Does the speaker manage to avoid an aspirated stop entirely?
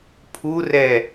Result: no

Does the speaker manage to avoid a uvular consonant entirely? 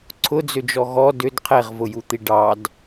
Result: no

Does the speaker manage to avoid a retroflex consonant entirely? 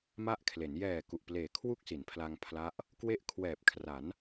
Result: yes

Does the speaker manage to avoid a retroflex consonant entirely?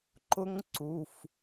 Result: yes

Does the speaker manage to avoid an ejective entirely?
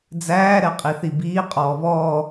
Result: no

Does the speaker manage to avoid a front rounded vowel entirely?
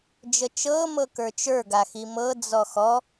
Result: yes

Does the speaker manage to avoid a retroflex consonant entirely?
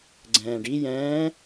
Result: no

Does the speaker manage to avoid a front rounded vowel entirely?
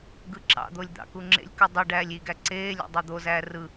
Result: yes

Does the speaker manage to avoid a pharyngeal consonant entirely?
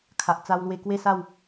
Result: yes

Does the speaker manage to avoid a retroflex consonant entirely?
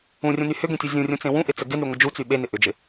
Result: yes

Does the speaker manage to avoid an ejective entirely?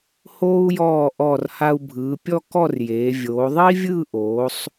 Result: yes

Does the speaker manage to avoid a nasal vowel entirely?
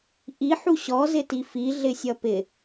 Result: yes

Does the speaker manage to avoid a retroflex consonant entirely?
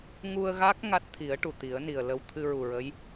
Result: no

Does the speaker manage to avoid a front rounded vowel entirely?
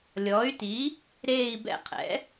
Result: no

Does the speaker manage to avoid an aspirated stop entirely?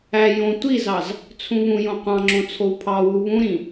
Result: no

